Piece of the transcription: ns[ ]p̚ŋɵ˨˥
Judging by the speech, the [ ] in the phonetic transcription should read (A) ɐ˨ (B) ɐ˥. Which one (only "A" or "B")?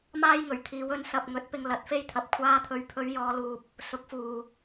A